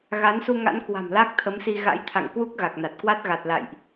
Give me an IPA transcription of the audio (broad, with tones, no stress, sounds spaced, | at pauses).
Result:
ɣ a˨˦ n s u˧ ŋ a̰˧˥ n k w a̤˨˩ m l a˦˥ k̚ t̪ʰ ə˨˦ m s i˧ ɣ a̰˧˥ j t̪ʰ a̰˧˨ ŋ k w u˦˥ k̚ ɣ a˨˩ k̚ n a˨˩ t̚ k w a˦˥ t̚ ɣ a˨˩ t̚ l a̰˧˨ j ʔ